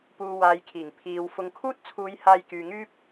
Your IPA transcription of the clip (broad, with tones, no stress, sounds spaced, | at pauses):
p uː˨ w aː˨ j kʰ iː˨˩ ŋ pʰ iː˨ w f ʊ˨ ŋ kʰ uː˥ t̚ t͡sʰ uː˨˧ j h aː˧ j k yː˨ ŋ yː˥ p̚